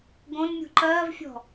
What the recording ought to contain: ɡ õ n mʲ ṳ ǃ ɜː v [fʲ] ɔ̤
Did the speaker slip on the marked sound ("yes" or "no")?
no